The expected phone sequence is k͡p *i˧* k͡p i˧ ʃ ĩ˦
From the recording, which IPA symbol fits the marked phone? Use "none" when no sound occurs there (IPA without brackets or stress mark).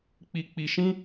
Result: i˧